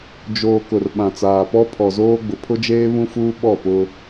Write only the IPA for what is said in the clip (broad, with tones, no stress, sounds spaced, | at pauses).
d͡ʒ oː˨ k ʊ˨ r ɓ ã˨ t͡s aː˨ p ɔ˦ pʰ ɔ˨ z oː˦ ɡ͡b ʊ˨ pʰ ʊ˦ d͡ʒ eː˦ β ũ˦ f uː˦ ɓ ɔ˦˨ p ʊ˦